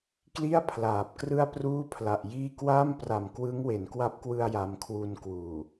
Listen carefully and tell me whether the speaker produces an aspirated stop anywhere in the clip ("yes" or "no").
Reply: yes